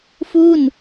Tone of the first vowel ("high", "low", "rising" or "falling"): falling